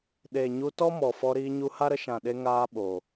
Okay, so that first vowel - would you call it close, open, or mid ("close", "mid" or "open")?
mid